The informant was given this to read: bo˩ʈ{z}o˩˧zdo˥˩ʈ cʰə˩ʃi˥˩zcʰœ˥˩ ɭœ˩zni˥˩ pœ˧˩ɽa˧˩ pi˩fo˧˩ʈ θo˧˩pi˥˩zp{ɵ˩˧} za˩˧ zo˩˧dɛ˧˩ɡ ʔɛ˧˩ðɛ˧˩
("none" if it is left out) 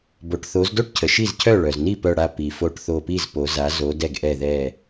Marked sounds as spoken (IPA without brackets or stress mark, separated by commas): θ, o˩˧